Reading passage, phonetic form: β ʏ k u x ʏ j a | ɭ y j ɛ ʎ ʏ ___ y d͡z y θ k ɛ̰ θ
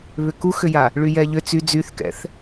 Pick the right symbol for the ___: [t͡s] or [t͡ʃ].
t͡s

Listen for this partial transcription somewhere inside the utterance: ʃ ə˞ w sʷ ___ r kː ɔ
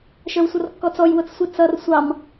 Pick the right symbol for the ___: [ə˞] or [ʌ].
ʌ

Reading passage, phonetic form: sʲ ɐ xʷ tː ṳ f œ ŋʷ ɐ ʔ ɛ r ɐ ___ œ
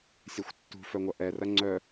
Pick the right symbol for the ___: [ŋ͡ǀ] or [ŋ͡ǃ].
ŋ͡ǀ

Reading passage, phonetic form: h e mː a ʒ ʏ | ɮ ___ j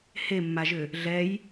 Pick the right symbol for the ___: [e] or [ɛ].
ɛ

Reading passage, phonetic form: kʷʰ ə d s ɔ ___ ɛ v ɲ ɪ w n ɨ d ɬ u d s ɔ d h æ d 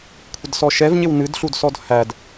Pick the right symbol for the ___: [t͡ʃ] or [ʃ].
ʃ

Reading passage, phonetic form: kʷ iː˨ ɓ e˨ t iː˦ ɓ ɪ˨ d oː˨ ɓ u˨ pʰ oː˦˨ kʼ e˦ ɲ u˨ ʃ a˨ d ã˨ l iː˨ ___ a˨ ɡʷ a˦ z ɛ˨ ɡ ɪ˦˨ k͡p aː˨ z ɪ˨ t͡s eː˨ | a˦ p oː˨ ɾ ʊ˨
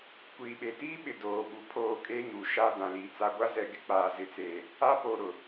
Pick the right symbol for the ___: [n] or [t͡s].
t͡s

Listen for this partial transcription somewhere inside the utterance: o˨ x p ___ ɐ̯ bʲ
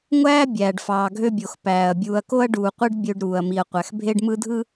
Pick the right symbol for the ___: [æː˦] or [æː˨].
æː˨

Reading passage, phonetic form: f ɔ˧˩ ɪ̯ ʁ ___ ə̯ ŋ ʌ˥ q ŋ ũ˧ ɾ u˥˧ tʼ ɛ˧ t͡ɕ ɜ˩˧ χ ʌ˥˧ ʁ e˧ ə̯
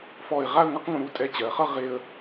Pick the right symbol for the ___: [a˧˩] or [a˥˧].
a˥˧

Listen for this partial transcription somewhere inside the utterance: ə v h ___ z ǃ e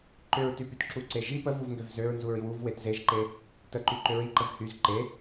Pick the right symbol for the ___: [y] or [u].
y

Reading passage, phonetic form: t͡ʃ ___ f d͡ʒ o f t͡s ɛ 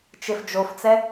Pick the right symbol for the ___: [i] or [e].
e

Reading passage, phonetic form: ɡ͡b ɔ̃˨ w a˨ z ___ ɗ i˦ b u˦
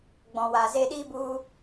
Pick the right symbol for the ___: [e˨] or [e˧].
e˧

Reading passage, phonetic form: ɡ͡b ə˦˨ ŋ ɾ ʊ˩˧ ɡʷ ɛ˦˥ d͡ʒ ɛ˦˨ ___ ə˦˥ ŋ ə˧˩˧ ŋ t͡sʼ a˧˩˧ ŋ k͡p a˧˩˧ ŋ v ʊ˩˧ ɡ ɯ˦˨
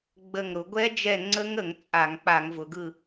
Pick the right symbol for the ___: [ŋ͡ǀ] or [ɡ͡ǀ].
ŋ͡ǀ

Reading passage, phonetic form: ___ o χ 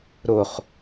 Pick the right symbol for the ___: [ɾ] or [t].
ɾ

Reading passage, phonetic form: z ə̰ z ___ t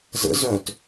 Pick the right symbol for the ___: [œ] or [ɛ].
œ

